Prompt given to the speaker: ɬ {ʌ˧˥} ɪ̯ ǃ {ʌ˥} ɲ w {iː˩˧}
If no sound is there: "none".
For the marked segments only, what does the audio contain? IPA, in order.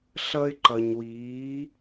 ʌ˥, ʌ˧, iː˧˥

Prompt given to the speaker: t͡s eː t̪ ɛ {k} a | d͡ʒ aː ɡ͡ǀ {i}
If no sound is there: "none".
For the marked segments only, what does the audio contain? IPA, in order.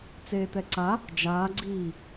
ǀ, iː

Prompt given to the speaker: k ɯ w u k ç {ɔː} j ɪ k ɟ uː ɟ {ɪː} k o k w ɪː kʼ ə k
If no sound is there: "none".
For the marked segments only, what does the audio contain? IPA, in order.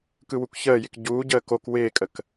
əː, əː

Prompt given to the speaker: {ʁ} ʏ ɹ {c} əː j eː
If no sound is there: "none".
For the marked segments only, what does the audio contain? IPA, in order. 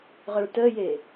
ʁ, t

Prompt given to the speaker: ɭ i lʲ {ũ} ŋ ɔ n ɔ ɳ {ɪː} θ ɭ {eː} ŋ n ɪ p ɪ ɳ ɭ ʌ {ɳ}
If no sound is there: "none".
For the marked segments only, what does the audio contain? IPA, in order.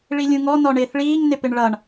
ũ, ɪː, iː, ɳ

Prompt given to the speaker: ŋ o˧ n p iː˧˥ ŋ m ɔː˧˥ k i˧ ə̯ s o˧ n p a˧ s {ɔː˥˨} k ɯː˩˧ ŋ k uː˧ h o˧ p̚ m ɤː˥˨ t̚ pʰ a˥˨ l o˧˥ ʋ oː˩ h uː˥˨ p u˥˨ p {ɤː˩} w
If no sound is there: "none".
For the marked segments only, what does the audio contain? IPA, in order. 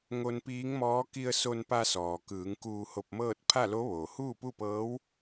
ɔː˩, ɤː˧˥

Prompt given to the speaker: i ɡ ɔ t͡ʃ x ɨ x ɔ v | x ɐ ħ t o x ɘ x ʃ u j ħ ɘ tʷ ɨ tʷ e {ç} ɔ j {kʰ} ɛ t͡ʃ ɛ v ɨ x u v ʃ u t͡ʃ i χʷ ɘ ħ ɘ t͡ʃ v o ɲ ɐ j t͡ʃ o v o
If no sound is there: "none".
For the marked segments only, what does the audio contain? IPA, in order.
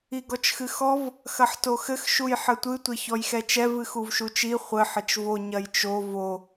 ç, x

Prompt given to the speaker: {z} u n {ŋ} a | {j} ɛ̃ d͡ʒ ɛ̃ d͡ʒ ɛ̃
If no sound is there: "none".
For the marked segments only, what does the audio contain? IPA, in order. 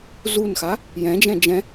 z, x, j

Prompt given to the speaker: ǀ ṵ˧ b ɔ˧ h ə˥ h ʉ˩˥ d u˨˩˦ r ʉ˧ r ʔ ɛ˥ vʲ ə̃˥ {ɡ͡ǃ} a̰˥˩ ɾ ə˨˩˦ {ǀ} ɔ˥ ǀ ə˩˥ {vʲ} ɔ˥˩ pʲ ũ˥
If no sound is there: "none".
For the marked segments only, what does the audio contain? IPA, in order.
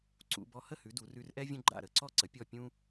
ɡ͡ǃ, ǀ, pʲ

